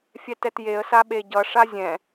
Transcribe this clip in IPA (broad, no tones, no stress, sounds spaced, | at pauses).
fʲ ɛ t ɛ t j e ə̯ s a ɓ e ɟ ʌ ʂ a zʲ ɛ̃